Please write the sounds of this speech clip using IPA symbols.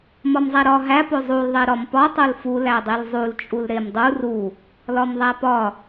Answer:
m ɒ m zˤ æ ɾ ɒ ɦ æ p o zˤ u l ðˤ e ɾ ɒ m p ɒ tˤ o l f u l æ dˤ i l zˤ u l t͡ʃʼ u l ɾ e m dˤ u r u | l ɒ m ðˤ æ p ɒ

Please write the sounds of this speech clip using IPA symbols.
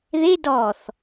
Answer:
ð e d ɔ θ

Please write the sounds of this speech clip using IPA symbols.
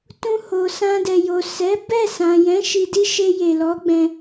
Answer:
t ũ˧ h o˨ s ã˧ d ɛ˨ j o˨ s ɛ˨˦ b ɛ˦˨ s ã˨ j ɛ̃˨˦ ʃ i˧ d i˦ ʃ e˧ j e˨ l ɔ˨˦ ɡ͡b ɛ̃˧

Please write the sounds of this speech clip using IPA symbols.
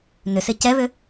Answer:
n ʏ s ɪ c ɛ β ʏ

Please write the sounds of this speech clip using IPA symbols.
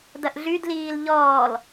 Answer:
d ɐ ʔ ɮ y d l iː l ʎ ɔː l

